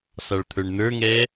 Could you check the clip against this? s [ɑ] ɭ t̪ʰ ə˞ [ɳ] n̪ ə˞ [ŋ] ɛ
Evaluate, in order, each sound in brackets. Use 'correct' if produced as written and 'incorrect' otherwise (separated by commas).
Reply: correct, correct, correct